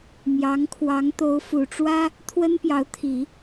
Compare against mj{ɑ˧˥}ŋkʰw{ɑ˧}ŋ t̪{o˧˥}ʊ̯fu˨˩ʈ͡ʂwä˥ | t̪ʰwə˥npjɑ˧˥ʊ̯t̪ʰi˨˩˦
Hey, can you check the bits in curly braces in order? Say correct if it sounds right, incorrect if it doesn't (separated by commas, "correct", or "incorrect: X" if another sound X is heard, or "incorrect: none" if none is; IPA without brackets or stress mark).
correct, incorrect: ɑ˧˥, correct